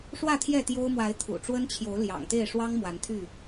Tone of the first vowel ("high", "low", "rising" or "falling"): falling